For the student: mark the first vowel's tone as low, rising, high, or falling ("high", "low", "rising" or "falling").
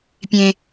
high